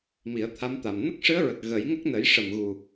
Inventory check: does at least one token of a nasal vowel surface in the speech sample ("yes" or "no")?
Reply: no